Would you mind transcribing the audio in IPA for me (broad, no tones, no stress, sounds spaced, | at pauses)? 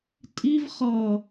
tʼ i v χ ʌ